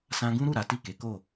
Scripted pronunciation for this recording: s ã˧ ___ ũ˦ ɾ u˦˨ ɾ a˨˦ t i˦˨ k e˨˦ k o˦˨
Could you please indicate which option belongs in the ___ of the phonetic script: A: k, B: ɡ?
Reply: B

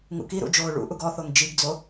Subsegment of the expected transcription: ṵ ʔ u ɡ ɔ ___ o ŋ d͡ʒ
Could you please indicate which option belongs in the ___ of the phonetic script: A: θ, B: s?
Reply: A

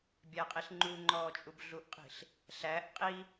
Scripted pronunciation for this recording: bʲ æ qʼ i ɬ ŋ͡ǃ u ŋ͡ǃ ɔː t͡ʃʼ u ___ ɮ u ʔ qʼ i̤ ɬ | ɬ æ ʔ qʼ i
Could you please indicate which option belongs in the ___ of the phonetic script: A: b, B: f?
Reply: A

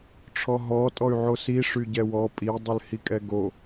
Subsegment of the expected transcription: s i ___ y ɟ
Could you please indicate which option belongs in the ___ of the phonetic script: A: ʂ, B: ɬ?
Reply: A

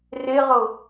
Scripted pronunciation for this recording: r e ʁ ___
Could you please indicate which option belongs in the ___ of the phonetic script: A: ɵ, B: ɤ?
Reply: B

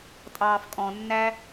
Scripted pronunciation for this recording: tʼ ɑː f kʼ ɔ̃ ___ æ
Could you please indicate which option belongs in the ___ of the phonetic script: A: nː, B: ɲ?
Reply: A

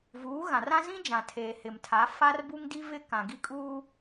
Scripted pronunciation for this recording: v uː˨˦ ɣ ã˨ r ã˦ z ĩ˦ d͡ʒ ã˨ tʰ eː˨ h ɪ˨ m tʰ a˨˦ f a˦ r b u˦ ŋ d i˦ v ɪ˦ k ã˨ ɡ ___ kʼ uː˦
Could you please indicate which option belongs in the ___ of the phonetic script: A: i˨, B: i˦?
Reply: B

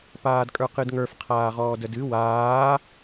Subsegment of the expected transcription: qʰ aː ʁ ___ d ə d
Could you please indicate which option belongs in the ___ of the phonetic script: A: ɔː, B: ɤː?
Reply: A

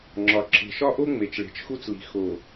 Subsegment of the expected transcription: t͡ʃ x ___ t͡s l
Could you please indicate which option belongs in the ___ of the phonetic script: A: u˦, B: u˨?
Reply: A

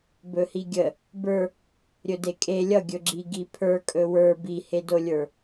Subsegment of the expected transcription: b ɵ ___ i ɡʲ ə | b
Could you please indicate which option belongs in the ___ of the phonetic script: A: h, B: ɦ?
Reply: A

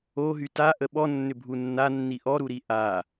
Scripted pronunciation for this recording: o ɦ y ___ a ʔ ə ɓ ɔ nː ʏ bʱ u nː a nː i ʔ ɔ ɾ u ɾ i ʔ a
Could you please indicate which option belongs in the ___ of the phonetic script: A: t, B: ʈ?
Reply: A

